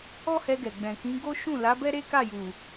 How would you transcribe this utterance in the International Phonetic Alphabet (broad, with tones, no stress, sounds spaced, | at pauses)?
ɔ˦ h ɛ˧ ɡ ɛ˨ ɡ͡b ɛ̃˨ k ĩ˨˦ ɡ o˦ ʃ ũ˦˨ l a˨˦ b ɛ˦ ɾ e˦ k a˦˨ j u˨